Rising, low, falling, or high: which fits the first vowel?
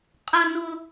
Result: high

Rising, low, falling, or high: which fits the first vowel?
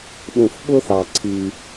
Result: low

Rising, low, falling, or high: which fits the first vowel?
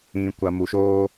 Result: low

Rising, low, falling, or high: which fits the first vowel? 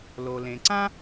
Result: low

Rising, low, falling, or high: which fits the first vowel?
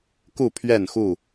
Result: falling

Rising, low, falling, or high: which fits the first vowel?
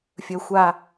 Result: low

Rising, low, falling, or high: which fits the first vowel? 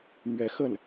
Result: rising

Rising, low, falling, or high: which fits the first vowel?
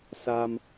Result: low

